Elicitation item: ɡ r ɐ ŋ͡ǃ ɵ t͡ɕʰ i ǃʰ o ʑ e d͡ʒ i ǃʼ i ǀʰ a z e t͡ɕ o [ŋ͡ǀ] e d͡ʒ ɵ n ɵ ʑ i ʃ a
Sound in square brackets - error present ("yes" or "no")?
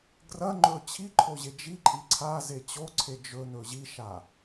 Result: yes